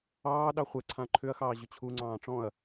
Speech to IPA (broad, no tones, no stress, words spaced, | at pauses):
ɑː ɗɑχʷɛǀʰã ǃʰʏɐ̯xɑː ʑʏt͡ɕʰuŋ͡ǀɑ̃ː ʈ͡ʂɔ̃ɐ̯